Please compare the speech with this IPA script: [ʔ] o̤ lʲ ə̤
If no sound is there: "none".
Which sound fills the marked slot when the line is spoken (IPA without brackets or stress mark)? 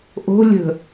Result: ʔ